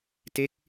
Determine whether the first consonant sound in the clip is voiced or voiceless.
voiceless